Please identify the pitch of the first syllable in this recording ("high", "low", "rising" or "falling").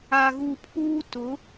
low